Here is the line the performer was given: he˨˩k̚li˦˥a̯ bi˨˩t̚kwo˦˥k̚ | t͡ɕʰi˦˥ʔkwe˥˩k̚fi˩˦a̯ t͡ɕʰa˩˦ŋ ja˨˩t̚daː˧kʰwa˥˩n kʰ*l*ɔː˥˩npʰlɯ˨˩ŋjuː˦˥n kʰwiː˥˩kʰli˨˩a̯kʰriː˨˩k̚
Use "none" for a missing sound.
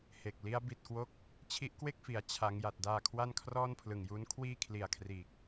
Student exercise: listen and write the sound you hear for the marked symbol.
r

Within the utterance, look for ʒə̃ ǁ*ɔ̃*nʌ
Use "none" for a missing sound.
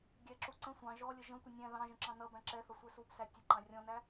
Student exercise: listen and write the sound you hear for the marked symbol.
ɑ̃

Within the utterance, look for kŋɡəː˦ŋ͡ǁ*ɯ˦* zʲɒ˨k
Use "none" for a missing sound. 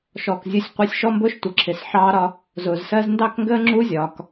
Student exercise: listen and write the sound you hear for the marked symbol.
u˦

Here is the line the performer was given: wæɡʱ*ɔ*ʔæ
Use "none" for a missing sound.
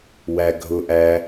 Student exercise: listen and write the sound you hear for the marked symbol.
ʊ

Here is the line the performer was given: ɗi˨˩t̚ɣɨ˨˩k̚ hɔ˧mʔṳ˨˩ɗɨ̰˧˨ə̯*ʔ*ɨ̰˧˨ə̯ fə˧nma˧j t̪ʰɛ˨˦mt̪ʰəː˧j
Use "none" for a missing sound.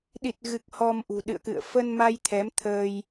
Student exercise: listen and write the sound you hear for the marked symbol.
k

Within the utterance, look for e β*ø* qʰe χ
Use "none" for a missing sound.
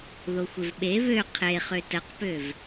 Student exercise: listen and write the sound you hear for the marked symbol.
ø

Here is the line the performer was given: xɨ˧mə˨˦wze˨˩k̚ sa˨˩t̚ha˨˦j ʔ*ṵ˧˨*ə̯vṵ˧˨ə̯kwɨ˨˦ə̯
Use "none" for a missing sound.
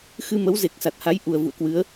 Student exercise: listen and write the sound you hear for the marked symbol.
u˨˩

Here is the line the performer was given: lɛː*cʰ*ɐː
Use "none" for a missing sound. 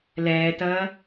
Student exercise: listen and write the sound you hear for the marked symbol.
t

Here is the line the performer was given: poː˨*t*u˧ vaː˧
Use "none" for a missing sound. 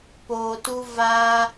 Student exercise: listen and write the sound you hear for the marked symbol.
t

